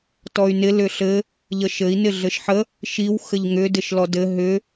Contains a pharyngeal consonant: yes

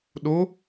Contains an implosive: yes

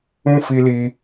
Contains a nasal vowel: yes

